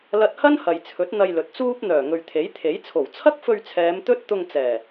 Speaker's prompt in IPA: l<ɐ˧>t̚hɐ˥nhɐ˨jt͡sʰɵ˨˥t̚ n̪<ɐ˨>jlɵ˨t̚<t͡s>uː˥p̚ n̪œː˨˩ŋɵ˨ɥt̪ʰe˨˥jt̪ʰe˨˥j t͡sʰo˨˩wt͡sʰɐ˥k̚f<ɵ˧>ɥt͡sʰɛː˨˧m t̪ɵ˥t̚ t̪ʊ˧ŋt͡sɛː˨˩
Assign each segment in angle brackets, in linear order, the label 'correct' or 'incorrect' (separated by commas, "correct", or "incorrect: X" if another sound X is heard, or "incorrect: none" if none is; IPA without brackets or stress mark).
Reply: correct, incorrect: ɐ˧, correct, correct